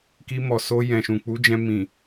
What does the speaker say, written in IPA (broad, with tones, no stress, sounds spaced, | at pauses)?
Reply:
k i˧ m ɔ˨ s o˧ j ɛ̃˨ ʃ ũ˨ k͡p u˨˦ d͡ʒ ɛ̃˧ m ĩ˨